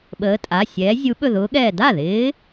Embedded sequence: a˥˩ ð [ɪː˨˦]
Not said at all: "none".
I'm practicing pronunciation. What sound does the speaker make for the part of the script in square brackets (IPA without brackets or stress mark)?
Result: ɪː˨˦